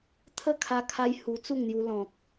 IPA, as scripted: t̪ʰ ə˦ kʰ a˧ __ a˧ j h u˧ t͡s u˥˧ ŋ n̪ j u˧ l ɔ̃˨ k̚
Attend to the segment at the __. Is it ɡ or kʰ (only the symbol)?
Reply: kʰ